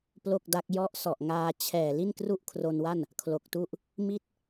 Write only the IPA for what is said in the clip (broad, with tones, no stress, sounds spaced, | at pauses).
p l o˥˩ k̚ d a˦˥ k̚ j ɔ˦˥ ʔ s ɔ˨˩ ʔ ŋ aː˧ t͡ɕʰ ɛː˨˩ l i˥˩ n k r u˥˩ ʔ kʰ r o˧ n w a˥˩ n | kʰ l o˨˩ k̚ t u˥˩ ʔ | m i˥˩ t̚